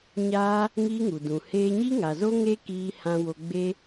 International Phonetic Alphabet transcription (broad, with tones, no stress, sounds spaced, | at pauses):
ɲ aː˦ | ŋ iː˦ ŋ u˨ d ũ˨ h eː˧ ɲ i˦ ŋ a˨ z o˦ ŋ e˦ k iː˧ h ã˧ w o˧ ɡ͡b e˦